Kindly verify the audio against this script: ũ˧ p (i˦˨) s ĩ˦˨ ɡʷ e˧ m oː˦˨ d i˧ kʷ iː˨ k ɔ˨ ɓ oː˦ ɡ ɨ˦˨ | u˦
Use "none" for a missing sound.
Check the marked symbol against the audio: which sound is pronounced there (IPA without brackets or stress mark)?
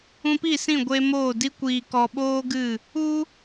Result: i˦˨